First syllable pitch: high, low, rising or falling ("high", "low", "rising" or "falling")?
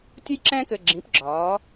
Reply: high